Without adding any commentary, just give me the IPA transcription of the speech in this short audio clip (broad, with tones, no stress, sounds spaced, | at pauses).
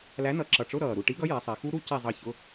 l æ˨˥ n ʌ˨˩ ǁ ʌ˨˩ ʈ͡ʂ ʊ˧˥˧ ɾ ʌː˨˩ ɾ u˦˨ ʈ i˨˥ ɡ ʌ˨˥ j ɛ˩˧ sˤ i˩˧ x u˦˥ ɾ u˦˥ c i˦˨ zˤ ʌ˦˨ ç ʊ˧˥˧